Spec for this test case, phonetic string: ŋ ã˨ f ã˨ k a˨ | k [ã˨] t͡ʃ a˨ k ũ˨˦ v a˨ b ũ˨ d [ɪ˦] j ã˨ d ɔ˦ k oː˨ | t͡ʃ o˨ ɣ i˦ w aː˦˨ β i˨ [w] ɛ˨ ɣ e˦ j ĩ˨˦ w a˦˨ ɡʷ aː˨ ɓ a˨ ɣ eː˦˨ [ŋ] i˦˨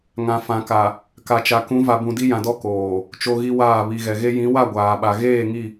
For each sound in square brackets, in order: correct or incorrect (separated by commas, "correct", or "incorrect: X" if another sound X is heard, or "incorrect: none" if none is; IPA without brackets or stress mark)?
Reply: incorrect: a˨, incorrect: i˦, incorrect: ɣ, correct